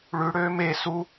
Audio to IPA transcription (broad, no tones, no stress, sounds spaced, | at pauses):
ɭ ʉ ɽ øː m e s u